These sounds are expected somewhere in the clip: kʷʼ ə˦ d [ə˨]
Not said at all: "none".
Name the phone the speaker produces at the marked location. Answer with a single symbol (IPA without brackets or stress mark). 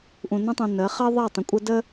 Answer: ə˦